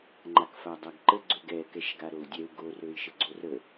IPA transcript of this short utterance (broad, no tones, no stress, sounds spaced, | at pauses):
ŋ͡ǃ a k f a dˤ a ɡ ǃ ə ɡ͡ǀ ø ɡ ɛ k ɛ ʃ ɡ a ɾ o u̯ dʲ ɛ u̯ ɡ o r ø i̯ ʃ ə ɡ͡ǀ o r ə